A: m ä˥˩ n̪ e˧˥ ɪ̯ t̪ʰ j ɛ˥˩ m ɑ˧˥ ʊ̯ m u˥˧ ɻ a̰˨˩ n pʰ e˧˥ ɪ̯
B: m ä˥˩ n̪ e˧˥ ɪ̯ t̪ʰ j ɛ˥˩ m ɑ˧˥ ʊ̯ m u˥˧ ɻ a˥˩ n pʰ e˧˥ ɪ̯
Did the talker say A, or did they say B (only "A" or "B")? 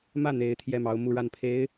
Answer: B